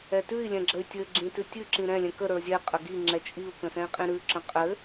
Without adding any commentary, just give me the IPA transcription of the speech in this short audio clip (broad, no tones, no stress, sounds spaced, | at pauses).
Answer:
ɛ t ʉ i̯ lʲ ɛ̃ ɡ͡ǁ ə y̯ tʲ ɘ ɡ͡ǁ ĩ t ʉ tʲ ʉ ǁ ĩ ɾ ɛ̃ lʲ ɛ̃ k ə ɾ ə˞ zʲ ɛ qʼ ə ɡ i ŋ͡ǁ ɛ t͡ʃʼ i u̯ k ə̃ s ɛ̃ i̯ qʼ ĩ ɾ ʉ ǁ ə̃ qʼ ɘ